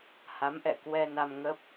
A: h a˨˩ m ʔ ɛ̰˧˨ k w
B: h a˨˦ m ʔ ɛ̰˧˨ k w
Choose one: B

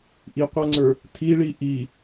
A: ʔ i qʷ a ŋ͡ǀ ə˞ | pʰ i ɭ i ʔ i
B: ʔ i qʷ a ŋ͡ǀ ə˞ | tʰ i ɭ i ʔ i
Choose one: B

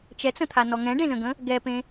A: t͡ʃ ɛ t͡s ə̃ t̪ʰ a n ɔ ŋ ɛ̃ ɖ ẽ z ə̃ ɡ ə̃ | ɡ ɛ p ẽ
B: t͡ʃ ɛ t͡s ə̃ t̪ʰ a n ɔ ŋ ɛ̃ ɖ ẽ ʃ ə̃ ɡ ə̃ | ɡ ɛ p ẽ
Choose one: A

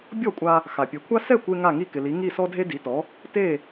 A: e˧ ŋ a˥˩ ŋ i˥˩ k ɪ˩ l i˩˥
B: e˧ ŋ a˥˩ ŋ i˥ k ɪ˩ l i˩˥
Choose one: A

